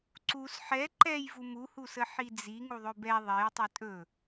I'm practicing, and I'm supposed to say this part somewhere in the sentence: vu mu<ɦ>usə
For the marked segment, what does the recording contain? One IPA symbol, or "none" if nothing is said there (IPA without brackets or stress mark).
h